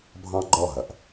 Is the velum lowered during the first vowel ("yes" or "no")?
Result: yes